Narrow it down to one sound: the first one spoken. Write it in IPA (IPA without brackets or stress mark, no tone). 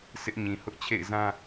s